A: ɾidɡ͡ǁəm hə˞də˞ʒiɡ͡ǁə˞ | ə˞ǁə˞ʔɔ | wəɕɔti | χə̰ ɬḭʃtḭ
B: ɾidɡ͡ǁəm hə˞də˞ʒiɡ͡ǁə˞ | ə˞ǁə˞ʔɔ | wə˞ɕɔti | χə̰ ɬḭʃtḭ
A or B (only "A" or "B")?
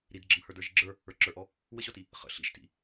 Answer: A